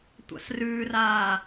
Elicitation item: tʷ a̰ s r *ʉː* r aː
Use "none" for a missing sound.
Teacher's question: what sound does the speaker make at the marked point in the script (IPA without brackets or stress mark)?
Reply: ʉː